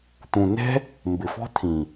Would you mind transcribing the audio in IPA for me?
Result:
t̪ ũ˨ n ɛ̤˦ | m b ɪ˨ f ɔ̤˦ t̪ʰ ĩ˨

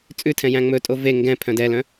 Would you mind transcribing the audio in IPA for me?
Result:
t͡sʼ ʉ tʰ ɛ̃ j æ̃ ŋ͡m ɵ tʼ o v e ŋ ɡ ɛ̃ pʰ œ̃ d ɛ l œ̃

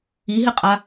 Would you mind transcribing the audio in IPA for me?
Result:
i ɦ ɪ qʼ a

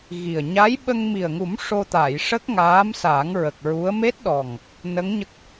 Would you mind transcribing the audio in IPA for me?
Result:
ɣ i˨˩ ə̯ ɲ a˧˥ j ɓ ə˧ ŋ m i˨˩ ə̯ ŋ u˨˩˦ m ʂ o˧ t̪ a˨˩˨ j ʂ ə˦˥ k̚ ŋ aː˧˥ m s a˨˩˦ ŋ ɹ ə˨˩ k̚ ɹ u˧˥ ə̯ m e˦˥ t̚ ɗ ɔ˨˩ ŋ | n ə˧˥ ŋ ɲ ə˦˥ k̚

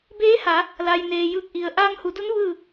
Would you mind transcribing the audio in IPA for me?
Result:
b eː˧˥ h a˩˧ | l a˩ j n eː˩ j ɯː˧˩ k̚ ʔ i˩ ə̯ ʔ aː˧ ŋ h u˩˧ d u˧˥ n ʋ ɯː˥˨

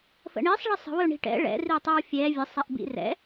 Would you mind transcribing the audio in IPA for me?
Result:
f ə̰ ɳ i sˤ ɭ i sˤ ə̤ w ɵ ɳ i̤ ʈ ɛ̰ ɭ ɛ̰ r i tˤ ɛ w fʲ ɛ vʲ ə sˤ ɛ ʔ b ḭ r ɛ̰

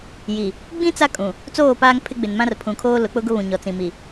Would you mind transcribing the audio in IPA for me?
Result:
j i˨ | ɡ͡b ĩ˦ t͡s a˦ kʼ ũ˨ | t͡s oː˦˨ p aː˦ ŋ pʰ ɪ˦ ɡ͡b ɪ˨ n m ã˦ r pʰ ũ˨ kʰ oː˦ l ʊ˨˦ k͡p ʊ˦ ɡ ʊ˦ β ũ˨ ɲ ɔ˨ t͡s ĩ˨ m i˨

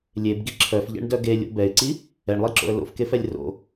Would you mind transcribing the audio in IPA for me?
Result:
lʲ e b ɡ i ǁʰ œ f ʎ ɛ̰ ɳ d œ ɡ e lʲ o̰ b ɛ ɪ̯ ǀ i | ɛ ɳ lˠ i ǁ o̰ ə̯ l o̰ f k e f ɛ lʲ r o̰

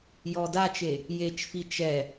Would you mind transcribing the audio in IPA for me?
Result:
j ɔ d a t͡ʃ e | j e t͡ʃ f i t͡ʃ ɛ

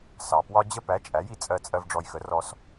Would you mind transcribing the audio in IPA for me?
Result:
s ɑ˩ p w ɒ˥ d͡ʑ ə˥ p æ˩˥ t͡ʃʼ æ˩˥ j i˩ t͡sʼ ɜ˧ t͡sʼ ɜ˧ v ɖ͡ʐ ɔ˧ j x ə˩˥ r ɔ˧ s

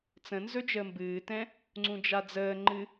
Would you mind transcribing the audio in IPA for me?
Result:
t͡s ə̃ n z ɵ d͡ʒ əː m b ɨː t ɛ̃ | ŋ͡ǀ ũ d͡ʒ a d͡z əː ŋ͡ǃ ɨ

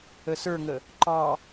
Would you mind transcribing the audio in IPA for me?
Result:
ə s ə˞ ŋ ə | ǃ ɑ

